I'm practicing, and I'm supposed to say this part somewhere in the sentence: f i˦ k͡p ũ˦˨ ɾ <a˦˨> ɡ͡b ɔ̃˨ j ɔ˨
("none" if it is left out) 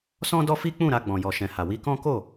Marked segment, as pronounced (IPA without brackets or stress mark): a˧